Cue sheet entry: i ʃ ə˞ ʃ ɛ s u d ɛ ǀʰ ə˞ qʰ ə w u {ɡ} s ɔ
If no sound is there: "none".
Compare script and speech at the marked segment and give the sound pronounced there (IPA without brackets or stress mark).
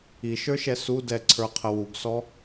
ɡ